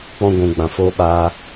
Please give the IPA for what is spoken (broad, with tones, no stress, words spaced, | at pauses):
k͡pɔ̃˧ɡʷũ˨ɡ͡bã˨ foː˧ɓaː˧